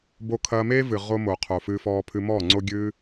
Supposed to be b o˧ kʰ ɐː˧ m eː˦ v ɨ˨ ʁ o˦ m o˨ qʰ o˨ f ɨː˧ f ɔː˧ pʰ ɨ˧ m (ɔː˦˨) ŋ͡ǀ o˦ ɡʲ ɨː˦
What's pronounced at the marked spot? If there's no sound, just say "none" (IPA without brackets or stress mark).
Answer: ɔː˦˨